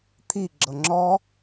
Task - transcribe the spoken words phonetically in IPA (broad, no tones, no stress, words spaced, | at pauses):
t̪ʰiɡ͡ǁɤ ŋ͡ǁɔ